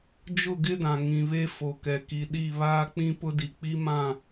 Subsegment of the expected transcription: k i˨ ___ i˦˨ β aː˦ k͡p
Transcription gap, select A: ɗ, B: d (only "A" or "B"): A